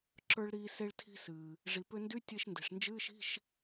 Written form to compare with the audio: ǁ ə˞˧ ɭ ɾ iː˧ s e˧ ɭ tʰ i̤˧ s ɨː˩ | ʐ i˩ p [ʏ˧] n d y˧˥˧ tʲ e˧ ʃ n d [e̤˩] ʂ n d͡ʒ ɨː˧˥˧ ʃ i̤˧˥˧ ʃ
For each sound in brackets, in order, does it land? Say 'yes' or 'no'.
yes, yes

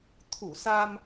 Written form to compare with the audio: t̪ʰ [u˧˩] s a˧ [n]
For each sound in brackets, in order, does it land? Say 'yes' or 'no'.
yes, no

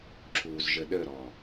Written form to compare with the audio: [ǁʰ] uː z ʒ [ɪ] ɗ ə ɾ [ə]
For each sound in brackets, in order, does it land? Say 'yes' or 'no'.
yes, no, no

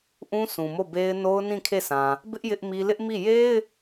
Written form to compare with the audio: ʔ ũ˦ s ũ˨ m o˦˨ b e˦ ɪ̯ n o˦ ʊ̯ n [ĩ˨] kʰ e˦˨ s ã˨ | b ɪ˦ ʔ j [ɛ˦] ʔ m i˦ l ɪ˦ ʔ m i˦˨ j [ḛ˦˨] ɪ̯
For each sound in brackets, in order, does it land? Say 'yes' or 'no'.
no, no, no

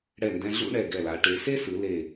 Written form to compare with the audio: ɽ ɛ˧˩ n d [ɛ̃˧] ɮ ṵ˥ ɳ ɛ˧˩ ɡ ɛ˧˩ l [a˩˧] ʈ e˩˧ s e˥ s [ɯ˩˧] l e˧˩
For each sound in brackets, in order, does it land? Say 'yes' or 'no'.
yes, yes, yes

